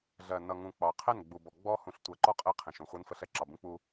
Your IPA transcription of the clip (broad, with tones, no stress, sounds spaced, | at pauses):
ɮ ɜ˨ n ʌ˨ ŋ ũ˨ k͡p ɑ˨ qʰ ɛ˦˨ n ɡ͡b u˨ b ɔ˨ ɡ͡b ɔ˦ h ũ˨ ɬ tʷ ɜ˨ ǃ ɔ˦ qʼ ɛ˦ qʰ ɛ̃˨ ʃ ũ˨ χʷ ɜ˦ n f ə˦ ɬ ɛ˦ ǁ ɑ˨ b ũ˦ k͡p u˦